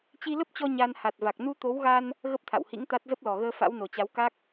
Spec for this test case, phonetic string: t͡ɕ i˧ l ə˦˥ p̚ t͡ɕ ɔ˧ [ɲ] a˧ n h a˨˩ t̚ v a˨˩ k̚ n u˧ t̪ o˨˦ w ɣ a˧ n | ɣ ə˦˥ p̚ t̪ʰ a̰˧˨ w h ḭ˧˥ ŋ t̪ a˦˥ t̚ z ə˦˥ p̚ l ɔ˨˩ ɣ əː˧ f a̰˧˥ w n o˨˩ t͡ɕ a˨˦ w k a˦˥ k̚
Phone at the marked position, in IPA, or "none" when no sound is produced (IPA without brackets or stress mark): ɲ